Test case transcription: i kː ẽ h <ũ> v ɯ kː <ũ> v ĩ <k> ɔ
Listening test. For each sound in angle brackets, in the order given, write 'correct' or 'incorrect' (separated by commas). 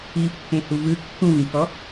incorrect, correct, correct